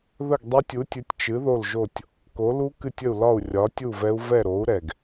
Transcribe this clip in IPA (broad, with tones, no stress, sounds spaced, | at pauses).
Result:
ð ə˥˨ ɡ dˤ ɛ˦˥ tʲ u˨˥ tʲ ɨ˨˥ tʲ t͡ʃ ɨ˨˥ ð o˥˨ l ʒ o˥˨ tʲ | k o˨˥ l u˦˥ k ɨ˥˨ tʲ ə˥˨ u̯ l ɒ˥˨ u̯ rʲ ɒ˨˥ tʲ u˥˨ v ɛ˦˥ u̯ v ɛ˥˨ ɾ o˨˥ u̯ ɾ ɛ˨˩ ɡ